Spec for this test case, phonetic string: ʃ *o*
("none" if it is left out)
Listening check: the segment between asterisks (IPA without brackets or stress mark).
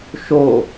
o